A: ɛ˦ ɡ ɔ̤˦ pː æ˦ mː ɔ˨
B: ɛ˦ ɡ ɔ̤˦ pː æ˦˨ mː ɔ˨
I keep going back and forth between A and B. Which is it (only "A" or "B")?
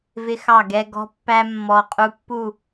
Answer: A